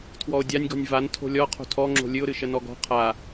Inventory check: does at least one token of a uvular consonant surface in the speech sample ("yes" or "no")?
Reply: yes